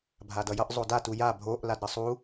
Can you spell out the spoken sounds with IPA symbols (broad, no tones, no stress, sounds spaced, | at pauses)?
bʱ a d ʌ j ʌ ʔ zˤ o d a t u j a bʱ o ʔ l a d ɾ ə sˤ u